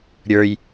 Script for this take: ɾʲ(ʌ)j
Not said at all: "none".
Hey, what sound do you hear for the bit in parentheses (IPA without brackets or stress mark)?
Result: ə˞